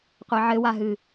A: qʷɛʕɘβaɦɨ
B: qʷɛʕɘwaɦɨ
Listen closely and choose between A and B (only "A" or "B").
B